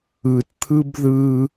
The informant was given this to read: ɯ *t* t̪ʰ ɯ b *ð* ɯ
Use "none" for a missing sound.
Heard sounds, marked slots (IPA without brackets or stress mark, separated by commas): t, ð